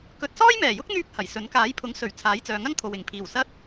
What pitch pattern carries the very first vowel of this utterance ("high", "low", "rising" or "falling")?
rising